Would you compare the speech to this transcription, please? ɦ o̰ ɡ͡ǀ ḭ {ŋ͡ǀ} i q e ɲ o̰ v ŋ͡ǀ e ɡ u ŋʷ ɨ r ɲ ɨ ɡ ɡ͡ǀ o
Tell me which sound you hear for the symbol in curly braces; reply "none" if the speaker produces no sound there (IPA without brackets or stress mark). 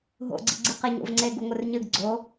ɡ͡ǀ